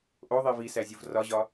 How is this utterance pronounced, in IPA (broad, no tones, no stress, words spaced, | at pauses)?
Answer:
ʔoðˤi visæzʲuv rɒʑɒ